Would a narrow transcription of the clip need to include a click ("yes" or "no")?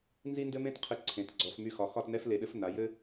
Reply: yes